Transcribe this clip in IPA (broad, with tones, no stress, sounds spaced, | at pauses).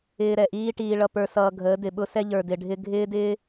ɪː˧ ɾ ɛ˨ ʔ iː˦ ʈ iː˧ ɭ ʌ˧ p ə˞˧ s ʌː˧ ɡʱ əː˨˦ d ɪ˨ ɓ ʊ˦ s ɛ˧ ʎ ə˞˨ d ɪ˨ ɖʱ ɪ˧ ɡʱ ɪː˦ d ɪː˦